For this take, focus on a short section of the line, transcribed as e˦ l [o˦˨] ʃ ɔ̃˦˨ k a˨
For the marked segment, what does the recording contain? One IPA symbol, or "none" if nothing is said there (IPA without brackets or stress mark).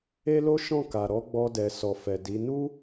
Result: o˦